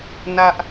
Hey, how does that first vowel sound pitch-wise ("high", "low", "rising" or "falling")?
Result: high